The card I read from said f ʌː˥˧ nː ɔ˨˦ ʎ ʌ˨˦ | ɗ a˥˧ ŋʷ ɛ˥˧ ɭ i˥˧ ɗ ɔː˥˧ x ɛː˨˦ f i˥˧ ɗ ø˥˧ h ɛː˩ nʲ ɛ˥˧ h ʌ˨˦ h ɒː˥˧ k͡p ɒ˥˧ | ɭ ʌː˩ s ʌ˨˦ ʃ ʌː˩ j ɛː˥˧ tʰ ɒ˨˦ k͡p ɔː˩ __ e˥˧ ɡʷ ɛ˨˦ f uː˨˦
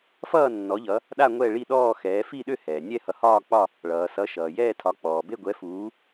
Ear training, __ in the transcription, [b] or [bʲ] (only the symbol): b